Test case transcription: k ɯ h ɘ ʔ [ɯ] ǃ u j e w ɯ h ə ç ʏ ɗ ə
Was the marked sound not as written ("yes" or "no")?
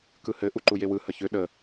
yes